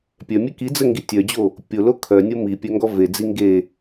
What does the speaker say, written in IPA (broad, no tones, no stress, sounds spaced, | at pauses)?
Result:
pʲ œ mʲ e k i d͡z ə ŋ ɡ i tʲ œ d͡ʑ o | pʲ o l o kʰ œ nʲ o m i pʲ œ ŋ ɡ ɔ v e d͡z i ŋ ɡ e